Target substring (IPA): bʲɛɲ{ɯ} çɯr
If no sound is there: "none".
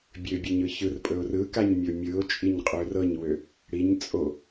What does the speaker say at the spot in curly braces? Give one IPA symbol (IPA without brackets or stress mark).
ɯ